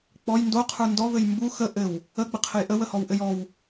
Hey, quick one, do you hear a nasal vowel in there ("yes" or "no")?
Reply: no